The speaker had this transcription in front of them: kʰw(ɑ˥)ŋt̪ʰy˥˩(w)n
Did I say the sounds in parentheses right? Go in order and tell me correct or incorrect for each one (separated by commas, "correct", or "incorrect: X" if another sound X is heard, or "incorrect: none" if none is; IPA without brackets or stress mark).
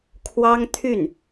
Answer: correct, incorrect: none